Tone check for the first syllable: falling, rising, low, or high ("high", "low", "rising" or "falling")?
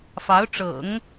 rising